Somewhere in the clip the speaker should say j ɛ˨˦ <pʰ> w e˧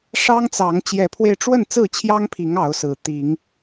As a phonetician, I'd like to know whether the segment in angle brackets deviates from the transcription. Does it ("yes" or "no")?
no